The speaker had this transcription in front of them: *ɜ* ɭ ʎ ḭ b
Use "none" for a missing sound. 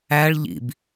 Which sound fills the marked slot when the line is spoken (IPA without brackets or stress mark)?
æ